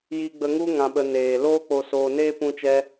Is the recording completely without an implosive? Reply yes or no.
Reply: no